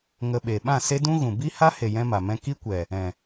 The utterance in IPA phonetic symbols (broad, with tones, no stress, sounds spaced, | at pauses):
ŋ ə˧ ɓ e˨ ɓ ã˦˨ s e˦ d ũ˦ ɣ ũ˨ b i˦ h a˦ h e˨ j ɛ̃˦ m a˨ m ɛ̃˦ k i˦ kʷ ɛ˨ | ɛ̃˨